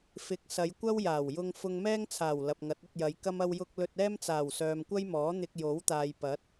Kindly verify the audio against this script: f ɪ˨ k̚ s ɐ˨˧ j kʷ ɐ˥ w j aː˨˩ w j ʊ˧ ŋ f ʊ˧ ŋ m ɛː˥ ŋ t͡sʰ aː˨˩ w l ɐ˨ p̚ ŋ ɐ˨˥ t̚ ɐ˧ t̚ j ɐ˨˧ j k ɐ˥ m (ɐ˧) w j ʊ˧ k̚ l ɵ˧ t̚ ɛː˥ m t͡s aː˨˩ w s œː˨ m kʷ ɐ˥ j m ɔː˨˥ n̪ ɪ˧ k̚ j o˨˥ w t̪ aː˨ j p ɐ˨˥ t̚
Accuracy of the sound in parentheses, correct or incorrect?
correct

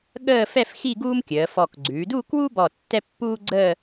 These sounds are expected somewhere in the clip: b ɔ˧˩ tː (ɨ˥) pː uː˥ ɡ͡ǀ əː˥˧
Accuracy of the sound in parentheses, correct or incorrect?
incorrect: ɛ˥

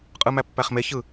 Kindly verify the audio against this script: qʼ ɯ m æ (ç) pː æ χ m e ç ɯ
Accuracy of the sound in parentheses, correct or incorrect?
incorrect: none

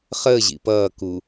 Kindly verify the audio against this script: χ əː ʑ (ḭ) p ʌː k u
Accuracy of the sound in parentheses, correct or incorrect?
correct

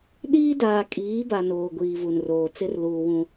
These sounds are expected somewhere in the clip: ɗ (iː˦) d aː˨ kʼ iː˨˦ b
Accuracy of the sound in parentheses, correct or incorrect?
correct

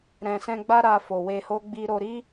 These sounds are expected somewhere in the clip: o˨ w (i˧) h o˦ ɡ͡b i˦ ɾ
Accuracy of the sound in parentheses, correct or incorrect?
incorrect: e˧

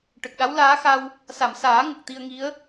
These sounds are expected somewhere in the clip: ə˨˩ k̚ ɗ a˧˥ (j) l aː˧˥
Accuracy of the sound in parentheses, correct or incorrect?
incorrect: w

